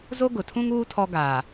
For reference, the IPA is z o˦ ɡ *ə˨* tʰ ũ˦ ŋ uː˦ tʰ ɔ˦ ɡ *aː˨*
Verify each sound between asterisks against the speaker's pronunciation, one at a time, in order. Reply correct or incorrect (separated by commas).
incorrect, correct